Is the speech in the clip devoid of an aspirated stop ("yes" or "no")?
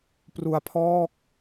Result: no